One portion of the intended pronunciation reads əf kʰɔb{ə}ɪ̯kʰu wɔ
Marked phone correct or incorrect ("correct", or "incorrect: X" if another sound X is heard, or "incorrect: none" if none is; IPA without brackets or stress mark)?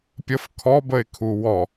correct